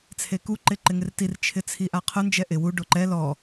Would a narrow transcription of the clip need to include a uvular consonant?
yes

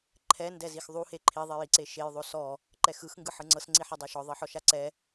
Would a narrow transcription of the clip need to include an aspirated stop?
yes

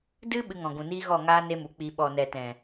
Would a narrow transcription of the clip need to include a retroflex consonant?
no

